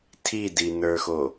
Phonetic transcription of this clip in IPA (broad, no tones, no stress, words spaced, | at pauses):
tʰidinə˞xo